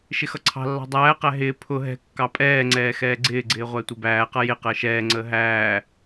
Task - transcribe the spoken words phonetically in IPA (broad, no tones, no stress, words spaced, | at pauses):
ʃɪxʌǀʰɑ̤lːɑ̤ dˤæːqæ ɦɪː pʰʊ ɦɛ̤ kːɑpʼɛːŋ͡ǀɛː xɛːɡ͡ǀɪːɡ͡ǀɪː ʁʷætʷɪbæːqʌ jɪ qəːʃɛːŋ͡ǀəː ɦæː